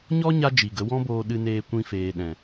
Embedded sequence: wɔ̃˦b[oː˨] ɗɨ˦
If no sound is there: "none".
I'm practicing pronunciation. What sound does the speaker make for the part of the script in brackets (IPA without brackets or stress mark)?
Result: oː˧